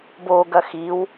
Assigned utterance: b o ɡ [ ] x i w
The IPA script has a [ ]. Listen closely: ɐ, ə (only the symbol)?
ɐ